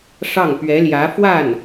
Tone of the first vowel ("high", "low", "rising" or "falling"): falling